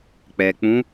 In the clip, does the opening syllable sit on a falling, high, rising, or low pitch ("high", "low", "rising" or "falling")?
low